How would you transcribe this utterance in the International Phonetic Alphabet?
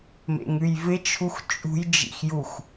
m ḛ ŋ ʉ j v ɪ t͡ʃʰ u x t͡ʃʼ ṳ j d͡ʒ ḭ x j u x

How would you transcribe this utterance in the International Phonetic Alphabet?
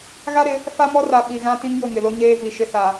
ɣ a˦ ɾ ɪ˨˦ | f a˦ m ɔ˦ r a˨ ɓ i˨ ɣ ã˦ t ĩ˦ ŋ j ʊ˦˨ ŋ ɪ˨ l o˦ ɲ eː˦ v i˨ ʃ ɪ˦ s a˨

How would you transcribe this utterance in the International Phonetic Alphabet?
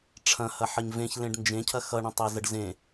ʈ͡ʂʰ ɐ̃ h ɐ ħ ə ɲ v ẽ ç l ẽ ɖ n d͡ʒ ẽ cʰ ɐ x ʌ ɳ ə̃ tˤ e z ə ɖ z ẽ

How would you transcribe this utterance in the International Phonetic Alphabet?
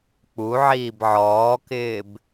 k͡p u ʕ iː b ʕ ɔː k ɪː b

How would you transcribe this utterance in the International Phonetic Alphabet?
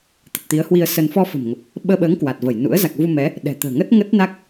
t̪ ə˨˩ t̚ t̪ i˨˦ ə̯ h w i˧ ə̯ s ə˧ n f ɔ˧ f ə̤˨˩ m ŋ ə˨˩ p̚ | ɓ əː˧ ɓ əː˨˦ ŋ k w a˨˩ t̚ v ə˧˩ j n ṵ˧˥ ə̯ z a˨˩ k̚ v u˧ m ɛ˨˦ | ɗ ɛ̤˨˩ t̪ ə̤ː˨˩ ŋ ə˦˥ t̚ ŋ ə˦˥ t̚ n a˦˥ k̚

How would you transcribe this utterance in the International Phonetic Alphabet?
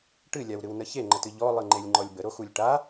ʈ ɨ lʲ a w ɾ ɨ w n ə ç e ŋ͡ǃ ə t ɨ ʎ ɔ lˠ ɨ ŋ͡ǃ e lʲ ŋ͡ǃ ɔ lʲ b ə ɾ o x u lʲ ʈ a

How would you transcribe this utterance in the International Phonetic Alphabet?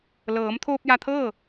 l ɤː˩˧ m t̪ʰ oː˧ p̚ j a˧ t̪ʰ ɤː˥˨

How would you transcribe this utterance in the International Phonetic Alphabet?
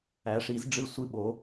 æ˩˧ ʂ i˩˧ z ɖ͡ʐ ɨ˧˩ sʷ ɨ˧˩ ɓ o˩˧

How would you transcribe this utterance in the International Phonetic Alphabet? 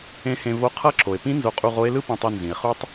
ẽ˧˥ h ẽ˧ v o˧˥ qʰ ʌ˧˥ ǁʰ o˩ e̯ p ĩ˧˥ n z o˧ qʼ u˧ ʁ o˧˥ e̯ l ɯ˥ p ĩ˧ tˤ i˧ n z ĩ˩ e̯ χ u˥ tˤ

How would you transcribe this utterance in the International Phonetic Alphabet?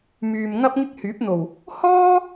m yː˨ m ŋ ɐ˥ p̚ ŋ ɪ˥ k̚ h yː˨˥ p̚ n̪ o˨˩ w | h ɔː˥

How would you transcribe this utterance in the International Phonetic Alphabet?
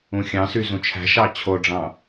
ũ xʲ ɑ̃ s y z ũ t͡ʃʰ æ̤ ʃ ɑ t͡ɕʰ o ɖ͡ʐ ɑ̃

